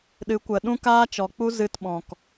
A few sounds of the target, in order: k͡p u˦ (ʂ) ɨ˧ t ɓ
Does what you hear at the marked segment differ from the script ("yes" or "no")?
yes